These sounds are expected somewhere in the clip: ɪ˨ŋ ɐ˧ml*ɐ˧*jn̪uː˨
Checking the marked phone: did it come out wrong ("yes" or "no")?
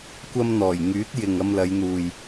yes